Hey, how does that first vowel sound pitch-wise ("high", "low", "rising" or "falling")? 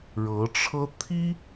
rising